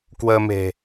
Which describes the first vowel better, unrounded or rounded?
unrounded